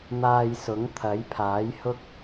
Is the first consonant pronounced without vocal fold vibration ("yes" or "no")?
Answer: no